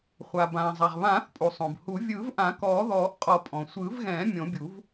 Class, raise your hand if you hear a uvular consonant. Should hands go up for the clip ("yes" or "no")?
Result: yes